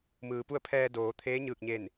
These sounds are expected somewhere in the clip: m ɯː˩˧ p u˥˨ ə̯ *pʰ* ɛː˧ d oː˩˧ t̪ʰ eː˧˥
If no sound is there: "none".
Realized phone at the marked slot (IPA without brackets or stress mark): pʰ